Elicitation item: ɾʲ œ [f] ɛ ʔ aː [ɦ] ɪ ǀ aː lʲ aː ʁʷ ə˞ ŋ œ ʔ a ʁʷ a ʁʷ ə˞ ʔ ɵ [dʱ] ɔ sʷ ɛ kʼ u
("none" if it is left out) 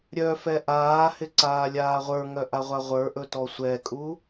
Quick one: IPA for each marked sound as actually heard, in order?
f, h, t

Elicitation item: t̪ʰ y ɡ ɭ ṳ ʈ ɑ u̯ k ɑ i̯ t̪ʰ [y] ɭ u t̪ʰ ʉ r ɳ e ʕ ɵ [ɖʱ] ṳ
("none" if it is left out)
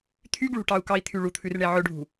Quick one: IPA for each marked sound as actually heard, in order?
y, ɖʱ

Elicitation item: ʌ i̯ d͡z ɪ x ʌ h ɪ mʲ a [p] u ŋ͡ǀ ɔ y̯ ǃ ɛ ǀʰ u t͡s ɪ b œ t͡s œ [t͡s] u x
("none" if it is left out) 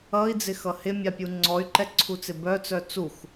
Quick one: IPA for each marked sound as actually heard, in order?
pʲ, t͡s

